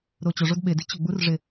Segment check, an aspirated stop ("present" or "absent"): absent